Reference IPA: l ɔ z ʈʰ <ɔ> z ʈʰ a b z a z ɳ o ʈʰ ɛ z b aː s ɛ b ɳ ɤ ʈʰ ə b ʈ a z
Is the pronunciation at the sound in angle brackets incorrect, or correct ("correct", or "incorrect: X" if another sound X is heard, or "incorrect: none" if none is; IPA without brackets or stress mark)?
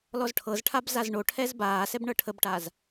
incorrect: ɤ